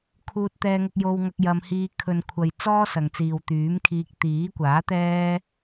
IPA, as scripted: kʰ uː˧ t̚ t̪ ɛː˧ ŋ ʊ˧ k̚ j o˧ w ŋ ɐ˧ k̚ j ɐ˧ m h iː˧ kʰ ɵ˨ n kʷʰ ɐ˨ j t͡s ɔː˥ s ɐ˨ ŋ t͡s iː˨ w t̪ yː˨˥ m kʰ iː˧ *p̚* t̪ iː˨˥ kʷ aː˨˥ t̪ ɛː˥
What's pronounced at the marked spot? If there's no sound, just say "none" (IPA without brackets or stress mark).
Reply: k̚